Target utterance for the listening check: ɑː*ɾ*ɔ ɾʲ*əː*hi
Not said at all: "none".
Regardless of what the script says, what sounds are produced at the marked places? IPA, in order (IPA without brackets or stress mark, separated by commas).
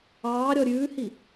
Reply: ɾʲ, ʉː